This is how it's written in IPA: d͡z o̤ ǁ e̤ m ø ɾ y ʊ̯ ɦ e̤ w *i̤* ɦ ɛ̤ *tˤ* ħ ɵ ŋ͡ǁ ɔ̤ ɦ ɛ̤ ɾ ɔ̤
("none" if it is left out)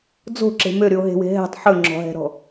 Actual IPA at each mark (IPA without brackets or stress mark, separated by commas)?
e̤, tˤ